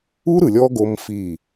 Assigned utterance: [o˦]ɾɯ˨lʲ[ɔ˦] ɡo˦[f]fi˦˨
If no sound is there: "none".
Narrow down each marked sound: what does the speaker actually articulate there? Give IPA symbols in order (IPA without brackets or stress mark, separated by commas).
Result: u˦, ɔ˦, m